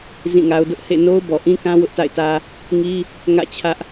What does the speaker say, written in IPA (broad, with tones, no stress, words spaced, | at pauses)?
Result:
zĩ˦˨ŋa˦ʊ̯ dʊ˦ʔhḛ˦˨ no˦ʊ̯bɔ˨ ʔĩ˦kã˦ wʊ˦ʔta̰˦˨ɪ̯tä˦ | ŋi˦ | ŋä̰˦˨t͡ɕʰä˦ʔ